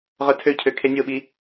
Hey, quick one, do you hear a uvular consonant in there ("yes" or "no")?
yes